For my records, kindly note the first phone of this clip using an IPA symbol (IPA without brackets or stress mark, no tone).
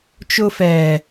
t͡ʃ